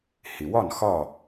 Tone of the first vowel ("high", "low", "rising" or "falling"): low